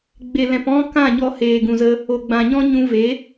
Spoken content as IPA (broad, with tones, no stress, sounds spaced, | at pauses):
ɡ͡b e˨ l ɛ̃˨ p ɔ̃˦ k ã˦˨ ɲ ɔ˧ h eː˨ ɡ ũ˨ z ə˧ | o˨ ɡ͡b ã˨ ɲ ɔ̃˦ ɲ ũ˧ v e˨˦